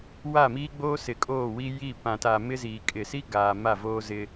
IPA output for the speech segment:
w a˦˨ m iː˦ ɡ͡b oː˦ s ɪ˨ kʼ oː˦˨ w i˦ j i˦˨ p ã˨ t a˨ m ɪ˦ z iː˨ kʼ ɪ˨ s i˦ ɡ aː˨ m a˦˨ v oː˦ z ɪ˦

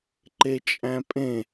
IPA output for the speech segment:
ǃ e t͡ʃʼ æ̃ pʼ ẽ

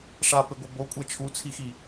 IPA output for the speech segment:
ʂ a p e ɡʷ ɛ b o kʷʼ ɛ t͡ʃʰ u t͡sʰ i x i

